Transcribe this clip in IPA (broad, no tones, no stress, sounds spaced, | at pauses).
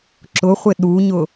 ǁ ʊ χʷ ɪ ɗ u ɲ ʊ